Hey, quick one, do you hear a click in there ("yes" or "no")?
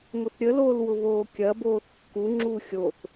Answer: yes